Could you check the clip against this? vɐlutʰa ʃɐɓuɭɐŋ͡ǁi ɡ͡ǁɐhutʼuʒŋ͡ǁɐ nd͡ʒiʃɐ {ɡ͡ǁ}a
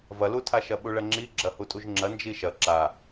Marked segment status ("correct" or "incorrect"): incorrect